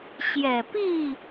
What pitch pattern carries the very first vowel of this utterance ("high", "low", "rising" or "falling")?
low